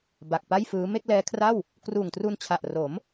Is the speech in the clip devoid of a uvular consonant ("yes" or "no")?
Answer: yes